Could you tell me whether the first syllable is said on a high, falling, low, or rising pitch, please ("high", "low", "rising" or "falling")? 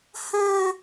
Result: high